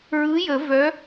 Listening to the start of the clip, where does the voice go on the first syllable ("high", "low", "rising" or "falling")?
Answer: rising